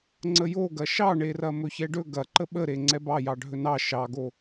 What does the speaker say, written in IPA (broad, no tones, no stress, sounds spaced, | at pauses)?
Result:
ŋ͡ǀ ə j o ɡ ɐ ʃ ɑ ɳ e r ɐ m ɵ ç ɛ ɖ ɵ ɡ ɐ ǃ ə ɓ ə ɾ e ŋ͡ǀ ɛ b ɑ j ɑ ɖʱ ɵ n ɑ ʃ ɑ ɡ o